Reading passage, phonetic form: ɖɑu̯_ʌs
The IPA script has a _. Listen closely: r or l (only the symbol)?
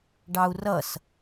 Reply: r